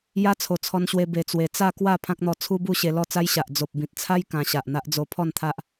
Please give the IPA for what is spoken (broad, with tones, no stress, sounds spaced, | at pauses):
j a˦ t͡sʰ o˨˩ t͡sʰ ɔ˧ n ɕ w e˧ b e˧ t͡s w e˧ t͡s a˥˧ k w a˥˧ pʰ ã˦ k̚ n̪ ɔ˧ t͡sʰ u˦ b u˥˧ ɕ e˧ l ɔ˥˧ t͡s a˦ j ɕ a˨ ʔ d͡z o˨ p̚ b ĩ˨ t̚ t͡sʰ a˦ j k ã˧ ɕ a˨ ʔ n̪ a˦ ʔ d͡z o˧ pʰ ɔ˥˧ n t̪ʰ a˦ ʔ